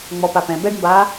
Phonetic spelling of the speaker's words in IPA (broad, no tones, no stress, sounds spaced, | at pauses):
ŋ͡m ɔ p a p ɛ̃ b ɛ ɖ m b aː